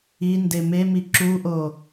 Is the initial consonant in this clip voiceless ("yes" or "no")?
no